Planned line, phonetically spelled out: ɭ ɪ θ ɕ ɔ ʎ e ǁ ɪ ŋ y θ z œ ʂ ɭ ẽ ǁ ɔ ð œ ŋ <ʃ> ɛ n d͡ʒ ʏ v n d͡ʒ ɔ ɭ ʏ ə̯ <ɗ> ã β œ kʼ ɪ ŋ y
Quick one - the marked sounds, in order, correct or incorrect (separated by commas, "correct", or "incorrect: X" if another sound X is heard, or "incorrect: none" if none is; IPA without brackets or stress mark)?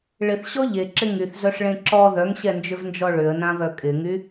incorrect: ɕ, incorrect: n